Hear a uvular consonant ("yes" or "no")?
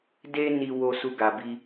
no